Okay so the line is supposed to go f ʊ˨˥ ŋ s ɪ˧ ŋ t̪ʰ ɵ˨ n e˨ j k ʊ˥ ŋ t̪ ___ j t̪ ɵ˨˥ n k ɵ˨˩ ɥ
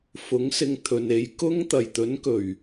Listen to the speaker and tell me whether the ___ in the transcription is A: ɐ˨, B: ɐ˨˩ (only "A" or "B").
B